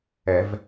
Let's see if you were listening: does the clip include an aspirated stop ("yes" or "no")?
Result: no